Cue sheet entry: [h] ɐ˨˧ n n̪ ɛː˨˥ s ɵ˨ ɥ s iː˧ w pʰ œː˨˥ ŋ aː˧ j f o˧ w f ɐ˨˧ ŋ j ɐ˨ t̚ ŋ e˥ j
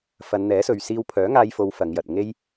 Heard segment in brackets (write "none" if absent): f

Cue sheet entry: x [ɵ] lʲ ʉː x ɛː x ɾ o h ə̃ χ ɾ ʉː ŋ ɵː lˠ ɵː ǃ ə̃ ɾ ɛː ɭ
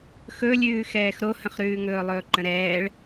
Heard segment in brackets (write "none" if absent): ɵ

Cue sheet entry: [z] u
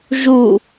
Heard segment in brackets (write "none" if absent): ʒ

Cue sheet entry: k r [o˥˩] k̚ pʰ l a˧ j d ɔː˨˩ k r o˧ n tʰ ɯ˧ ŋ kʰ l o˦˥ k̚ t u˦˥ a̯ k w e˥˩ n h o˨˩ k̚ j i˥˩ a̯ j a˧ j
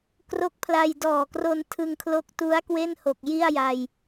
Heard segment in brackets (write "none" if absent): o˦˥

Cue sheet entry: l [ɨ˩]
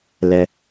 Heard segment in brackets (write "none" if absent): ɛ˩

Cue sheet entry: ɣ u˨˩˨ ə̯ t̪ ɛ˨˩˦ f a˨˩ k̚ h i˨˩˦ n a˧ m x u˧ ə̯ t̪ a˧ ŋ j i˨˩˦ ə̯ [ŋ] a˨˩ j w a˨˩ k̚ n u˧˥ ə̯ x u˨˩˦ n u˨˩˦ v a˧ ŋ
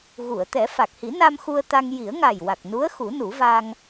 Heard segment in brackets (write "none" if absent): ŋ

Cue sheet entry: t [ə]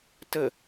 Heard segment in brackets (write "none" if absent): ə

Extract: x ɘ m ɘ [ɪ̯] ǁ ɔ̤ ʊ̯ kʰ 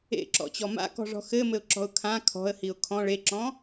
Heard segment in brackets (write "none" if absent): ʊ̯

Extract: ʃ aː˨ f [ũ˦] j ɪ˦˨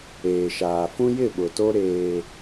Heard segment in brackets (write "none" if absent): ũ˦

